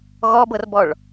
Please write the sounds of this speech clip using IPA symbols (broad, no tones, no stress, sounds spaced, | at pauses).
ɣ ɔ b ɤ r b ɔ ɭ